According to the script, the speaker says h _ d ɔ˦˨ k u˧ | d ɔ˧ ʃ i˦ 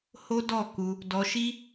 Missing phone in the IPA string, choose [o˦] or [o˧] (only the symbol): o˦